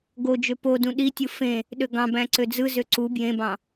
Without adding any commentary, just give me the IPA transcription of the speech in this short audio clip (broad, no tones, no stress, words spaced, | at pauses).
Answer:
ɡod͡ʒø podũ ɗitʲɯ fẽ | ɗøɡɑ̃bæ̃ ǀød͡zɯzø ǀu bjẽbɑ̃